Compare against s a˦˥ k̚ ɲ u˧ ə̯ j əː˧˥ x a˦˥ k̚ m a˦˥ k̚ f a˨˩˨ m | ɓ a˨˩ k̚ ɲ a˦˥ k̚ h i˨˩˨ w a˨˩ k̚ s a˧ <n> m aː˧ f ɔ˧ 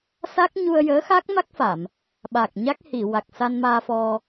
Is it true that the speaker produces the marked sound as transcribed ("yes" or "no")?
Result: yes